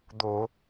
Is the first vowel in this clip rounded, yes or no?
yes